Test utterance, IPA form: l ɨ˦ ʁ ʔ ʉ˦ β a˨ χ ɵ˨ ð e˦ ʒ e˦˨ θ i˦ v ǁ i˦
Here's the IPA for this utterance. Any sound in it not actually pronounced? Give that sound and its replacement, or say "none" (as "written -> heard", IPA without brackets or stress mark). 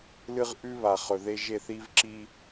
none